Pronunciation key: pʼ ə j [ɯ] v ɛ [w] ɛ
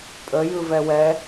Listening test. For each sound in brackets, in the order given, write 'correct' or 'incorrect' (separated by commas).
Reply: correct, correct